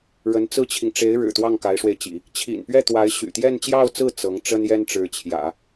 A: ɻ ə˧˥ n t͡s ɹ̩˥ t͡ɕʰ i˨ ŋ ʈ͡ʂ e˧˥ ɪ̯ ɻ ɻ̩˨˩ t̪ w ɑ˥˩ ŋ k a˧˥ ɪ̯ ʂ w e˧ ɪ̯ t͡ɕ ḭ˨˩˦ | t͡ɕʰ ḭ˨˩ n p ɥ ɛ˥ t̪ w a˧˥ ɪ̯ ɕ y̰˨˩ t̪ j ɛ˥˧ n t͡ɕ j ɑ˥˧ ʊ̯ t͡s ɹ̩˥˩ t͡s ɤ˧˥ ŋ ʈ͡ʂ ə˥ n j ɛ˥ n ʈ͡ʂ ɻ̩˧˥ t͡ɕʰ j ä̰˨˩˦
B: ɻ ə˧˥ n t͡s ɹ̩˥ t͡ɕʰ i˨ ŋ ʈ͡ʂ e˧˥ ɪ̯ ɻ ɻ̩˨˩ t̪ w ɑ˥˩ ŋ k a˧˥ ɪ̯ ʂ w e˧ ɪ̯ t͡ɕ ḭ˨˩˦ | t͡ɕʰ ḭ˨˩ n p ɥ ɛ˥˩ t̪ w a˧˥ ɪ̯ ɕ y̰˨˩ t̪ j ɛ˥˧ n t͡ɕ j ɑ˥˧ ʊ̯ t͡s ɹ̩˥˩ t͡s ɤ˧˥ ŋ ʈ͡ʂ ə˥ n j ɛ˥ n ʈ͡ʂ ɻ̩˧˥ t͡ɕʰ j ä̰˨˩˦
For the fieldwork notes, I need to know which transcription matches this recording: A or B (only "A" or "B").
B